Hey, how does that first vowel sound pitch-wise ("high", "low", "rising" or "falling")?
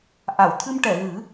low